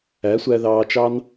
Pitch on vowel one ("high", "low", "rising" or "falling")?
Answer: rising